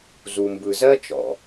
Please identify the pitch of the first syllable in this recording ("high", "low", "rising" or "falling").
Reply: low